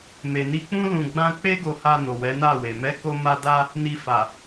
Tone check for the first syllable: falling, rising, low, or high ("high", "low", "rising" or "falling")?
low